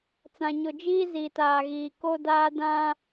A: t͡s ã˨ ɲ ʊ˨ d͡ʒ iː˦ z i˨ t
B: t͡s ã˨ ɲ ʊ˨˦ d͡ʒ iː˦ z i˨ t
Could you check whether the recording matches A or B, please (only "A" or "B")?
A